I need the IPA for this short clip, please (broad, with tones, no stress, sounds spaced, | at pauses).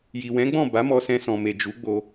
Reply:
j i˨ w ɛ̃˨˦ ɡ͡b ɔ̃˦˨ b a˨˦ m ɔ˧ s ɛ̃˧ s ɔ̃˨ m e˨ d͡ʒ u˨˦ ɡ͡b o˧